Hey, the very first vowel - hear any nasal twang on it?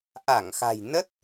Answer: no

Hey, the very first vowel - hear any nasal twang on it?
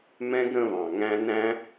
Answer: yes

